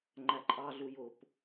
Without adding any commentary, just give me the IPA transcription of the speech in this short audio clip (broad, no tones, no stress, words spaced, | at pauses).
ŋ͡ǃæǃʼɑɮu jʊp